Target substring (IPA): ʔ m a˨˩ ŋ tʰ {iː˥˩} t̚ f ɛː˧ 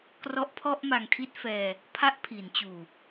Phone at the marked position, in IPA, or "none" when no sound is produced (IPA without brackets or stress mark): i˥˩